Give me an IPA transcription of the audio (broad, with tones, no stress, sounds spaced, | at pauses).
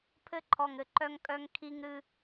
pʰ ɘ˦ ǃʰ ɔ˨ ŋ ɘ˨ ǃ œ˦ ŋ kʼ œ˦ ŋ kʰ i˦ ŋ ɾ ɨ˦